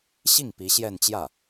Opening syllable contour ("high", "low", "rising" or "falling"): falling